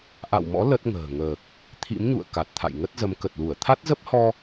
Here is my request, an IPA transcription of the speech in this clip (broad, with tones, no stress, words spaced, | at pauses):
ʔa̰˧˨wmɔ̰˧˥ lə˦˥t̚ŋə̤ː˨˩ŋəː˨˩k̚ | t̪ʰḭ˧˥mɲṵ˧˨ə̯ ka˨˩t̚t̪ʰa̰˧˨jŋə˦˥t̚zə˨˦m kə˨˩t̚lu˧˩ə̯ t̪ʰa˦˥t̚zə˦˥p̚hɔ˧